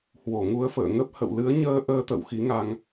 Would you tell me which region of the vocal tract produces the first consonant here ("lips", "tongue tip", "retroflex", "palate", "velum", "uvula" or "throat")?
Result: throat